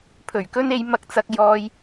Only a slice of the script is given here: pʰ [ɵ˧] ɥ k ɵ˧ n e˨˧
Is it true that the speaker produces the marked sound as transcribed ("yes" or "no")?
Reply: no